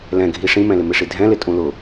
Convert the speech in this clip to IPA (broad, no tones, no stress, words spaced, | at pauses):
lɛ̃ɡʱi ʂĩmɛ̃lɪ mɪʂidʱɛ̃lɪ tʼũlʊ